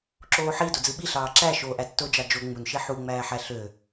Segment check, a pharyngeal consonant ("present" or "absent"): present